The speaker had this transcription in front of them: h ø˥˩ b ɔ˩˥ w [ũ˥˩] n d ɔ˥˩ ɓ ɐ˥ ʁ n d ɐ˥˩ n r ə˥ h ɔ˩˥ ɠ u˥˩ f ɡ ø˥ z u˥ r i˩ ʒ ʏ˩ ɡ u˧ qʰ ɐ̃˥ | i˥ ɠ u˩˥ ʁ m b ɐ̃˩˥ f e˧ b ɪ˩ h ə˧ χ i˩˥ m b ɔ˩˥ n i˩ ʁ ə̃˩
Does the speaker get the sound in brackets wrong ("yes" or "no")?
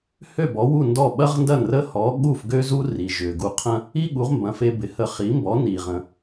yes